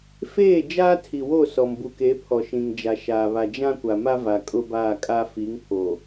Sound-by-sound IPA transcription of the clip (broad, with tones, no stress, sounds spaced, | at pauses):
f eː˦˨ d͡ʒ aː˦ tʰ i˨ w o˦˨ s ɔ˨ m b u˨ k e˨˦ pʰ ɔ˨ ʃ ĩ˨ ŋ d͡ʒ a˨ ʃ aː˨ β a˨ d͡ʒ ã˦ kʷ a˨ m a˦ v a˨ kʼ ʊ˦ b aː˦˨ kʼ a˦ f i˨˦ ŋ pʰ o˨